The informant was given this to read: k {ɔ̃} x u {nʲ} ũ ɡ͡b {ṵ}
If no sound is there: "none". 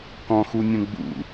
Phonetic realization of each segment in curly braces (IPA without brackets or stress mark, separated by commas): ɔ̃, nʲ, ṵ